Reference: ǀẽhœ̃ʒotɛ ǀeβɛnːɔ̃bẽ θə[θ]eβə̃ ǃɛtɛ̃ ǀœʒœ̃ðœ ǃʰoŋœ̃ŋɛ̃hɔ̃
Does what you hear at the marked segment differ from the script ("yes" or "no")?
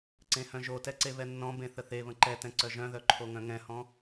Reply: no